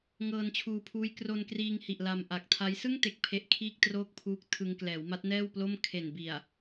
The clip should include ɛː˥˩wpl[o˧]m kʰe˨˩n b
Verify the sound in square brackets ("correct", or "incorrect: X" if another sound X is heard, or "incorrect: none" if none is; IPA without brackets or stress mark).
incorrect: o˥˩